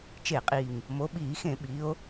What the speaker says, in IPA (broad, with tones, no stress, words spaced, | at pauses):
t͡ʃe˧˩˧qʼiː˨˩ŋ | mo˨˦ ɓiː˧˩˧xẽ˧˩˧ ɓi˨˦o̯